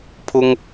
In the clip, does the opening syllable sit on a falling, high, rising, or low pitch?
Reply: high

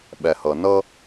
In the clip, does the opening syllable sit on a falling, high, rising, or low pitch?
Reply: low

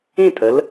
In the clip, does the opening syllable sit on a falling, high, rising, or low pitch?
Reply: falling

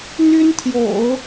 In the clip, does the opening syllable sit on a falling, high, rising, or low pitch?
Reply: high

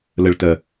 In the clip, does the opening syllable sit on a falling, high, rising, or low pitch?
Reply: low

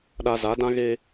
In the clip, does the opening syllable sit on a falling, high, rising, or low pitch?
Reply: low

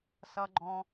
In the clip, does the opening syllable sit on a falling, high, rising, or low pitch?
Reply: low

